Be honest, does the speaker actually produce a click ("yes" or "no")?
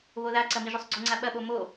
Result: yes